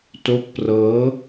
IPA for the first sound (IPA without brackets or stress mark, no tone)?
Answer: t